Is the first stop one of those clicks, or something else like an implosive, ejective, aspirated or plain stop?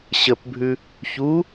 plain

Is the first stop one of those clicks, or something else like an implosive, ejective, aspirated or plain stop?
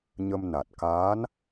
plain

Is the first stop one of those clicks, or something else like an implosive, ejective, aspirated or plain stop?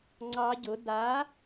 click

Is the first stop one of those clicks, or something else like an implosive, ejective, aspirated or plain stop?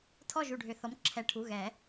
aspirated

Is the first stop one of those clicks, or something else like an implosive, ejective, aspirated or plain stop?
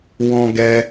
plain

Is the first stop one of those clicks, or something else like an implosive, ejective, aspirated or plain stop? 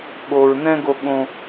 implosive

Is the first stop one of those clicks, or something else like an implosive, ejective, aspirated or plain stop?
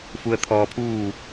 aspirated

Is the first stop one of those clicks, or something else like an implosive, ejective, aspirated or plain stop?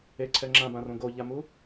click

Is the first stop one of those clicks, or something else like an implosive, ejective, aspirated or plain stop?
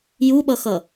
implosive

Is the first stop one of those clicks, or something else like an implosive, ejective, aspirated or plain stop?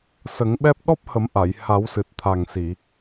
implosive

